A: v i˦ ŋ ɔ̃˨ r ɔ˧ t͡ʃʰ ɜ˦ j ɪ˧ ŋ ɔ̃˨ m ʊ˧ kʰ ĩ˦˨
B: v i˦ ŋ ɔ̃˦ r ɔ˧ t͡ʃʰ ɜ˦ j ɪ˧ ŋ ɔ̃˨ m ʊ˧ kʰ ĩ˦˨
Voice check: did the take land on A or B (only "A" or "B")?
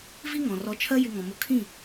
A